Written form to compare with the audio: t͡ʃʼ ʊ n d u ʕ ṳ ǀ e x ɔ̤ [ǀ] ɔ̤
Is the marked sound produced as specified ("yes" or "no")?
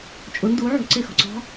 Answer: yes